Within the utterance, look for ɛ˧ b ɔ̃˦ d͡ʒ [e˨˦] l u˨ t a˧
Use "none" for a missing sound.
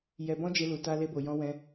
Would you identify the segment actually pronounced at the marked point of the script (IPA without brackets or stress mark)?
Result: e˧